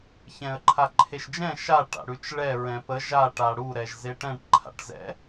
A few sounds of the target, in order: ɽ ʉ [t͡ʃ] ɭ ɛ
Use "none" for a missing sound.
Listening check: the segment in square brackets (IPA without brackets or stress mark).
t͡ʃ